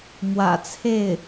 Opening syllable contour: low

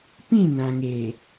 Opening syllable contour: falling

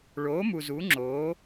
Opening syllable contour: rising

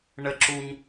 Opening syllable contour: low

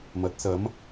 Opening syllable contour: rising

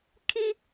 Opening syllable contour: high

